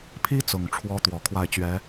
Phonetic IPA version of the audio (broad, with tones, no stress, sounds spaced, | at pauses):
pʰ i˥ t͡s ʊ˨˩ ŋ ʈ͡ʂʰ w ɔ˥ t̪ w ɔ˨˩ kʰ w a˥˩ ɪ̯ t͡ɕ ɥ ɛ˧˥